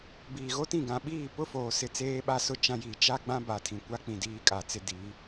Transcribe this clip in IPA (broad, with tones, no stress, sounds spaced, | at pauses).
b iː˨ ɣ o˦ t ĩ˦˨ ɡ ã˨ ɓ iː˦˨ p ʊ˦ f oː˨ s ɪ˦˨ t͡s eː˦ ɓ a˦ s ʊ˦ t͡ʃ ã˦ j iː˨ t͡ʃ a˦ ɡ͡b ã˦ b a˨ tʰ ĩ˨ kʷ a˦ k͡p ĩ˨ d iː˦ kʼ a˨ t͡s ɪ˦ d iː˨˦